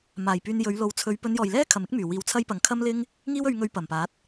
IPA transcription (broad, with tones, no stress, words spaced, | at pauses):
maː˨˩jpyː˧n jɵ˨˧ɥlo˨˥wt͡sʰɵ˨˧ɥ pɵ˨˧njɔː˨˩jlɛː˥ kʰɐ˨mɪ˥k̚myː˨˩wiː˨˧w t͡sʰɐ˧j pɐ˨˩ŋkʰɐ˥mlɪ˥ŋ | ŋiː˥wɵ˧ɥŋɵ˧ɥ pɐ˨˩mpaː˨˥t̚